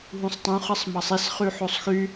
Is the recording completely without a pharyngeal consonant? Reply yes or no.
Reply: no